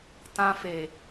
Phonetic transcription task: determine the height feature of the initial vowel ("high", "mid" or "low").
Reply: low